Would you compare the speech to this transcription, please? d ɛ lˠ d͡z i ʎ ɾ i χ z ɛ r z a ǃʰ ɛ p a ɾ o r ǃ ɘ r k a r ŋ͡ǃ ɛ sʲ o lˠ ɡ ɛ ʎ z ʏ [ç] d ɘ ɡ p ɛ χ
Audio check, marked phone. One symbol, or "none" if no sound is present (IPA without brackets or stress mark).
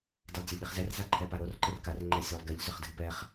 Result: χ